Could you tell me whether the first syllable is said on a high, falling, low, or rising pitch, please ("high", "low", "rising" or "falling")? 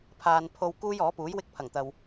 low